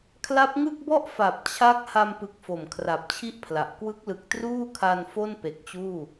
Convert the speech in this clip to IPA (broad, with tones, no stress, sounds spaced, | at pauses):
kʰ l a˦˥ p̚ ŋ ɯ˥˩ k̚ b ɔ˥˩ ʔ f a˨˩ p̚ t͡ɕʰ a˦˥ k̚ h a˧ m p ɯ˨˩ k̚ f o˨˩ m kʰ r a˨˩ p̚ t͡ɕʰ i˥˩ ʔ pʰ l a˨˩ ʔ k w ɯ˦˥ k̚ l ɯ˨˩ k̚ t r uː˥˩ kʰ a˧ n f o˥˩ n p e˨˩ k̚ t͡ɕ uː˥˩